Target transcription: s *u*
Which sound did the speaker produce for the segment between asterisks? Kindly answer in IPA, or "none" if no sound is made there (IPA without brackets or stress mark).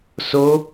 o